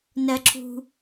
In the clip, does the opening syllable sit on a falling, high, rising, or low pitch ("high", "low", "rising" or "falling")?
high